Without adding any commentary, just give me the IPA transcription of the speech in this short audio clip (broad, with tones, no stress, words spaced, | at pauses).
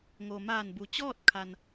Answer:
ŋo˩maː˧˩nbu˩t͡ɕɔː˥˨t̚ kʰa˩n